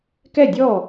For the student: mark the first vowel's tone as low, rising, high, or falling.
falling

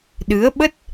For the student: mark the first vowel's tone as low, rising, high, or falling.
rising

